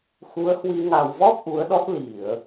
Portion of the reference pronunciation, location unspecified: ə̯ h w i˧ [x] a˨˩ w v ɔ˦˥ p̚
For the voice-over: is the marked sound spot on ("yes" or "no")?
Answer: no